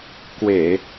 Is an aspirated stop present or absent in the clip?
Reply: absent